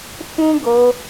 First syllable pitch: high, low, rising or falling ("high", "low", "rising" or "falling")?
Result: high